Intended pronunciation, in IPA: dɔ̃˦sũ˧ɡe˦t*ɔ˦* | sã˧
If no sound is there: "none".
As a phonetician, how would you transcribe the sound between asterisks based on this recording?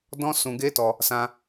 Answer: ɔ˧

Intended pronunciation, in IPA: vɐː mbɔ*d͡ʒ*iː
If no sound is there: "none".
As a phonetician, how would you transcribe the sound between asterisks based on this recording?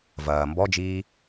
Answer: d͡ʒ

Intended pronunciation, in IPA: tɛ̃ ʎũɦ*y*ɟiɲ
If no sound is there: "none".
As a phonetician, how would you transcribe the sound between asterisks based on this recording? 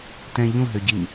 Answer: ø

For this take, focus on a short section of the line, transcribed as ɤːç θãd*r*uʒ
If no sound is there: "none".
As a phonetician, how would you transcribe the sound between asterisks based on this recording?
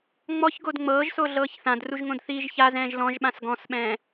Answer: r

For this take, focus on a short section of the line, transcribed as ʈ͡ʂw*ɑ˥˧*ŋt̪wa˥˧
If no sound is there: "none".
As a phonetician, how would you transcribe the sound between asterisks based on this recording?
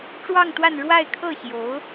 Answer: ɑ˥˧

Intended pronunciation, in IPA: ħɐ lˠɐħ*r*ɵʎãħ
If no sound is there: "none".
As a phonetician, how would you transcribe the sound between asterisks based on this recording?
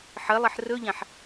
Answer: r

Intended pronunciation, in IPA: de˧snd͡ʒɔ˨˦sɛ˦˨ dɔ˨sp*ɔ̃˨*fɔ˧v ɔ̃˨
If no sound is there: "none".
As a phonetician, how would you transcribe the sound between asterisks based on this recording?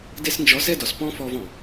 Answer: ɔ̃˦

